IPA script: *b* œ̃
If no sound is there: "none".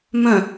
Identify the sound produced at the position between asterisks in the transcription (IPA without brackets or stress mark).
m